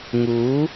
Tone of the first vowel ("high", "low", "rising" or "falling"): rising